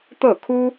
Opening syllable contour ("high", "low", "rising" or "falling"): falling